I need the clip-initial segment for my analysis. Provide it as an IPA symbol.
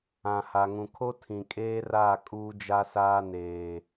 ã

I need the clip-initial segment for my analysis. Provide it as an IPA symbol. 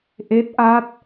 ʔ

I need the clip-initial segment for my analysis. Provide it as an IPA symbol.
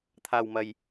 t̪ʰ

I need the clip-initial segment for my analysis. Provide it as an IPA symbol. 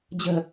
d͡ʑ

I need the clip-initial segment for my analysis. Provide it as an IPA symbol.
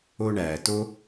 o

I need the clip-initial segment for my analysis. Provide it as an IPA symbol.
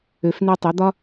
ø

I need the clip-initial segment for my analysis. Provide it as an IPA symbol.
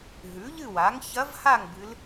ɦ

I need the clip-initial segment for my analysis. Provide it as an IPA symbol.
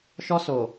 ʃ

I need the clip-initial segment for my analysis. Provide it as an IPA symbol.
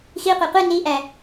x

